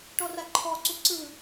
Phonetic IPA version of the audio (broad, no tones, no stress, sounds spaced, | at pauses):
ʈ ɔ r a ǃʰ ɔ ǀ u ǀ ɯ